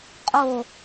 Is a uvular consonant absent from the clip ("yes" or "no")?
no